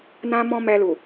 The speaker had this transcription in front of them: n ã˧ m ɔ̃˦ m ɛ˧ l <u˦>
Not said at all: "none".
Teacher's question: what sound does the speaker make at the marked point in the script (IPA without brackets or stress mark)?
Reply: u˨